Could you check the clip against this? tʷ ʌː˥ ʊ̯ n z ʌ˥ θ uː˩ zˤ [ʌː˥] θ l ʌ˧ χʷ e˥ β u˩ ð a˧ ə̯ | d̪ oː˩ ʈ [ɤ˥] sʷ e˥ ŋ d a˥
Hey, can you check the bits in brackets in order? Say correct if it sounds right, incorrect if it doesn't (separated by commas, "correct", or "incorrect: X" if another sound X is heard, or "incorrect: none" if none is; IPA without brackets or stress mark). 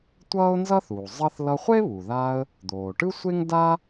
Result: incorrect: ʌ˥, incorrect: ɯ˥